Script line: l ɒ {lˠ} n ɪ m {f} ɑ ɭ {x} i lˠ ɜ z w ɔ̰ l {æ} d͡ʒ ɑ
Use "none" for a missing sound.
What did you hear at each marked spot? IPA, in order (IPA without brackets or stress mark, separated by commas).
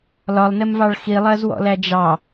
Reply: lˠ, v, x, æ